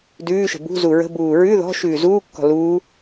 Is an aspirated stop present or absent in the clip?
absent